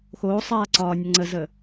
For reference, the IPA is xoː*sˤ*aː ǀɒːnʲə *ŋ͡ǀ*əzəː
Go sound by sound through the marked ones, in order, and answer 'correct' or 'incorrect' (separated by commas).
correct, correct